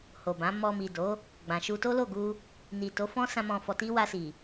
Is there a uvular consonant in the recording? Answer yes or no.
no